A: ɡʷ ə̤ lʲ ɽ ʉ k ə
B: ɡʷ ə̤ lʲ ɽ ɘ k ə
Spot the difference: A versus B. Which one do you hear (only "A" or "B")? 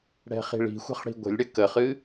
B